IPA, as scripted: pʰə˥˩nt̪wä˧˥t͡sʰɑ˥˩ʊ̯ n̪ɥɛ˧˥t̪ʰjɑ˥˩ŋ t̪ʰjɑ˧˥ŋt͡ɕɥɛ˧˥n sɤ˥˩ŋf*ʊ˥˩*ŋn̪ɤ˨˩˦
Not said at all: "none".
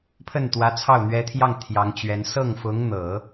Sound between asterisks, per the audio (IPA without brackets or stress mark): ʊ˧˥